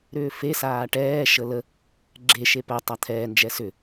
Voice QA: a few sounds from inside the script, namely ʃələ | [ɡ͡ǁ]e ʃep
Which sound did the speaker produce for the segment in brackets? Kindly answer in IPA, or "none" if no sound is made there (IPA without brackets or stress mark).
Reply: ɡ͡ǁ